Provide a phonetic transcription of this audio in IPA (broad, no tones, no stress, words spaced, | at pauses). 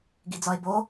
ɡid͡zɒe̯bo